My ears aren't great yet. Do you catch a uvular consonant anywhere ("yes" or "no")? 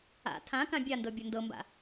no